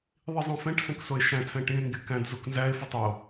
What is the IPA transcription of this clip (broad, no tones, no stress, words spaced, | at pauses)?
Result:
ðˤizˤõfɛ̃ʈ sɛ̃ksoe̯ʃæ̃ tʰɛ̃ʈĩe̯ ŋɡekæ̃d zoknzæe̯ fytˤeo̯